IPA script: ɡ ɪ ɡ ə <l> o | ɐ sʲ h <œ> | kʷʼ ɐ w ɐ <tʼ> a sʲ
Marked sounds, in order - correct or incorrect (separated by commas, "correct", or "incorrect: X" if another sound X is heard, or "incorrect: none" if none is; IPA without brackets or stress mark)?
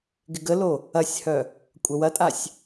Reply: correct, correct, correct